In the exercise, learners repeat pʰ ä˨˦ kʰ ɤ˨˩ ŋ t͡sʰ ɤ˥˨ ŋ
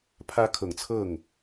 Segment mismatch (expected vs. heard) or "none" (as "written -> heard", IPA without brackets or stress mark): none